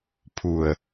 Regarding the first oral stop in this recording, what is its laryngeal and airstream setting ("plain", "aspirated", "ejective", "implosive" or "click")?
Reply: aspirated